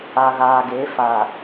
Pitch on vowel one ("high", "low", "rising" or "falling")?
low